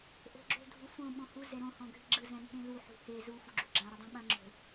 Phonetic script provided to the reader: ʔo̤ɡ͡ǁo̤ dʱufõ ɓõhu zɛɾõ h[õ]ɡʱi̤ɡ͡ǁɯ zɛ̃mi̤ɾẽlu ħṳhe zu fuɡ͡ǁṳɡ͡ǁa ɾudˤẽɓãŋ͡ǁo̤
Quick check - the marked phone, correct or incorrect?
incorrect: ɔ̃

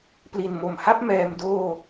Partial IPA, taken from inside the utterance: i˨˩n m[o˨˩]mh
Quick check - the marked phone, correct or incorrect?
correct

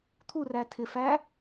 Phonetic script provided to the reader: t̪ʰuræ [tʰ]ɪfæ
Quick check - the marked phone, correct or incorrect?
correct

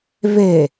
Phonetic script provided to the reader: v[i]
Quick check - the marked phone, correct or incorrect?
incorrect: e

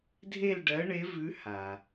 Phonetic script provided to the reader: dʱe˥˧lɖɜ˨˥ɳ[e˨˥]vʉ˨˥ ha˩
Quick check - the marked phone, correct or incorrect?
correct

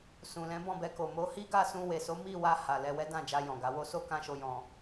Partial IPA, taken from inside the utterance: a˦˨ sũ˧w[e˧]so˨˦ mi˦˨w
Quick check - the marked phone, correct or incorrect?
incorrect: e˨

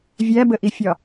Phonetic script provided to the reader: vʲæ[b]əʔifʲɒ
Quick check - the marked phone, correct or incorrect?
correct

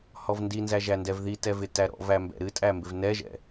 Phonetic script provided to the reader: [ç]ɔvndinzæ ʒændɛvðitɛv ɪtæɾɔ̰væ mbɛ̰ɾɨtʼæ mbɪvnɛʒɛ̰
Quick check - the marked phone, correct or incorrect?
incorrect: h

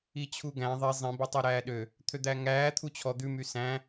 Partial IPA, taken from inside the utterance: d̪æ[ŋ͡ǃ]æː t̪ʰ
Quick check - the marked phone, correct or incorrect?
incorrect: ŋ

